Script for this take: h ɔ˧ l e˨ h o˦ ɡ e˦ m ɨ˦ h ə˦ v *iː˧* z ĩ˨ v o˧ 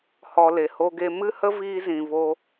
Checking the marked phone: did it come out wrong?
no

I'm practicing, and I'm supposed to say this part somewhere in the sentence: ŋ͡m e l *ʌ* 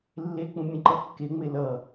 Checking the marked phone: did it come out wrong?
no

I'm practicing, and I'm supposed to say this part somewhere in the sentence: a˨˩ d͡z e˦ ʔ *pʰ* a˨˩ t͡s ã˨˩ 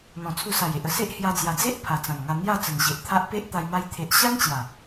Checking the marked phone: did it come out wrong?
no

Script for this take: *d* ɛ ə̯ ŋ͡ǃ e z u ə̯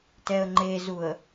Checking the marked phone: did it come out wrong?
yes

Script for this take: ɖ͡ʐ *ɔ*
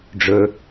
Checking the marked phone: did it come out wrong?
yes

